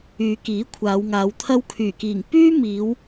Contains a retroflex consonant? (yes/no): no